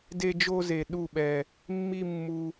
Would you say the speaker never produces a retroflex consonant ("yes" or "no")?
yes